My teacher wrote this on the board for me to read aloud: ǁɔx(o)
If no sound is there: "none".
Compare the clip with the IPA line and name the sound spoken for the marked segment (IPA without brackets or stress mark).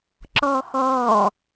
ɔ